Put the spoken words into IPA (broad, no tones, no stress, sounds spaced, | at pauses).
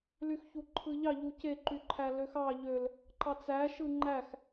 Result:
l y x ç u ǃʰ ɯ ʎ ɑ ʎ u c e ǃ y ǃʰ æ l ø x ɑ ʎ ø l | ǃ ɑ t͡s æ ʃ ɯ ŋ͡ǃ æ x